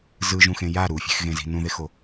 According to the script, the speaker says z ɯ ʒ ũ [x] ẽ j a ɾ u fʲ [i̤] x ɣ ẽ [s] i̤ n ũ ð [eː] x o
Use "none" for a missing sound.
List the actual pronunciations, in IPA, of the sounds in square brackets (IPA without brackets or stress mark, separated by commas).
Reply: x, e̤, z, e